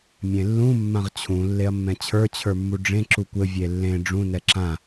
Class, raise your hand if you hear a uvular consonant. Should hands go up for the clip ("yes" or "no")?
yes